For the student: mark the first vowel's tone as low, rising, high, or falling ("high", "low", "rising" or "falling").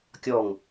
falling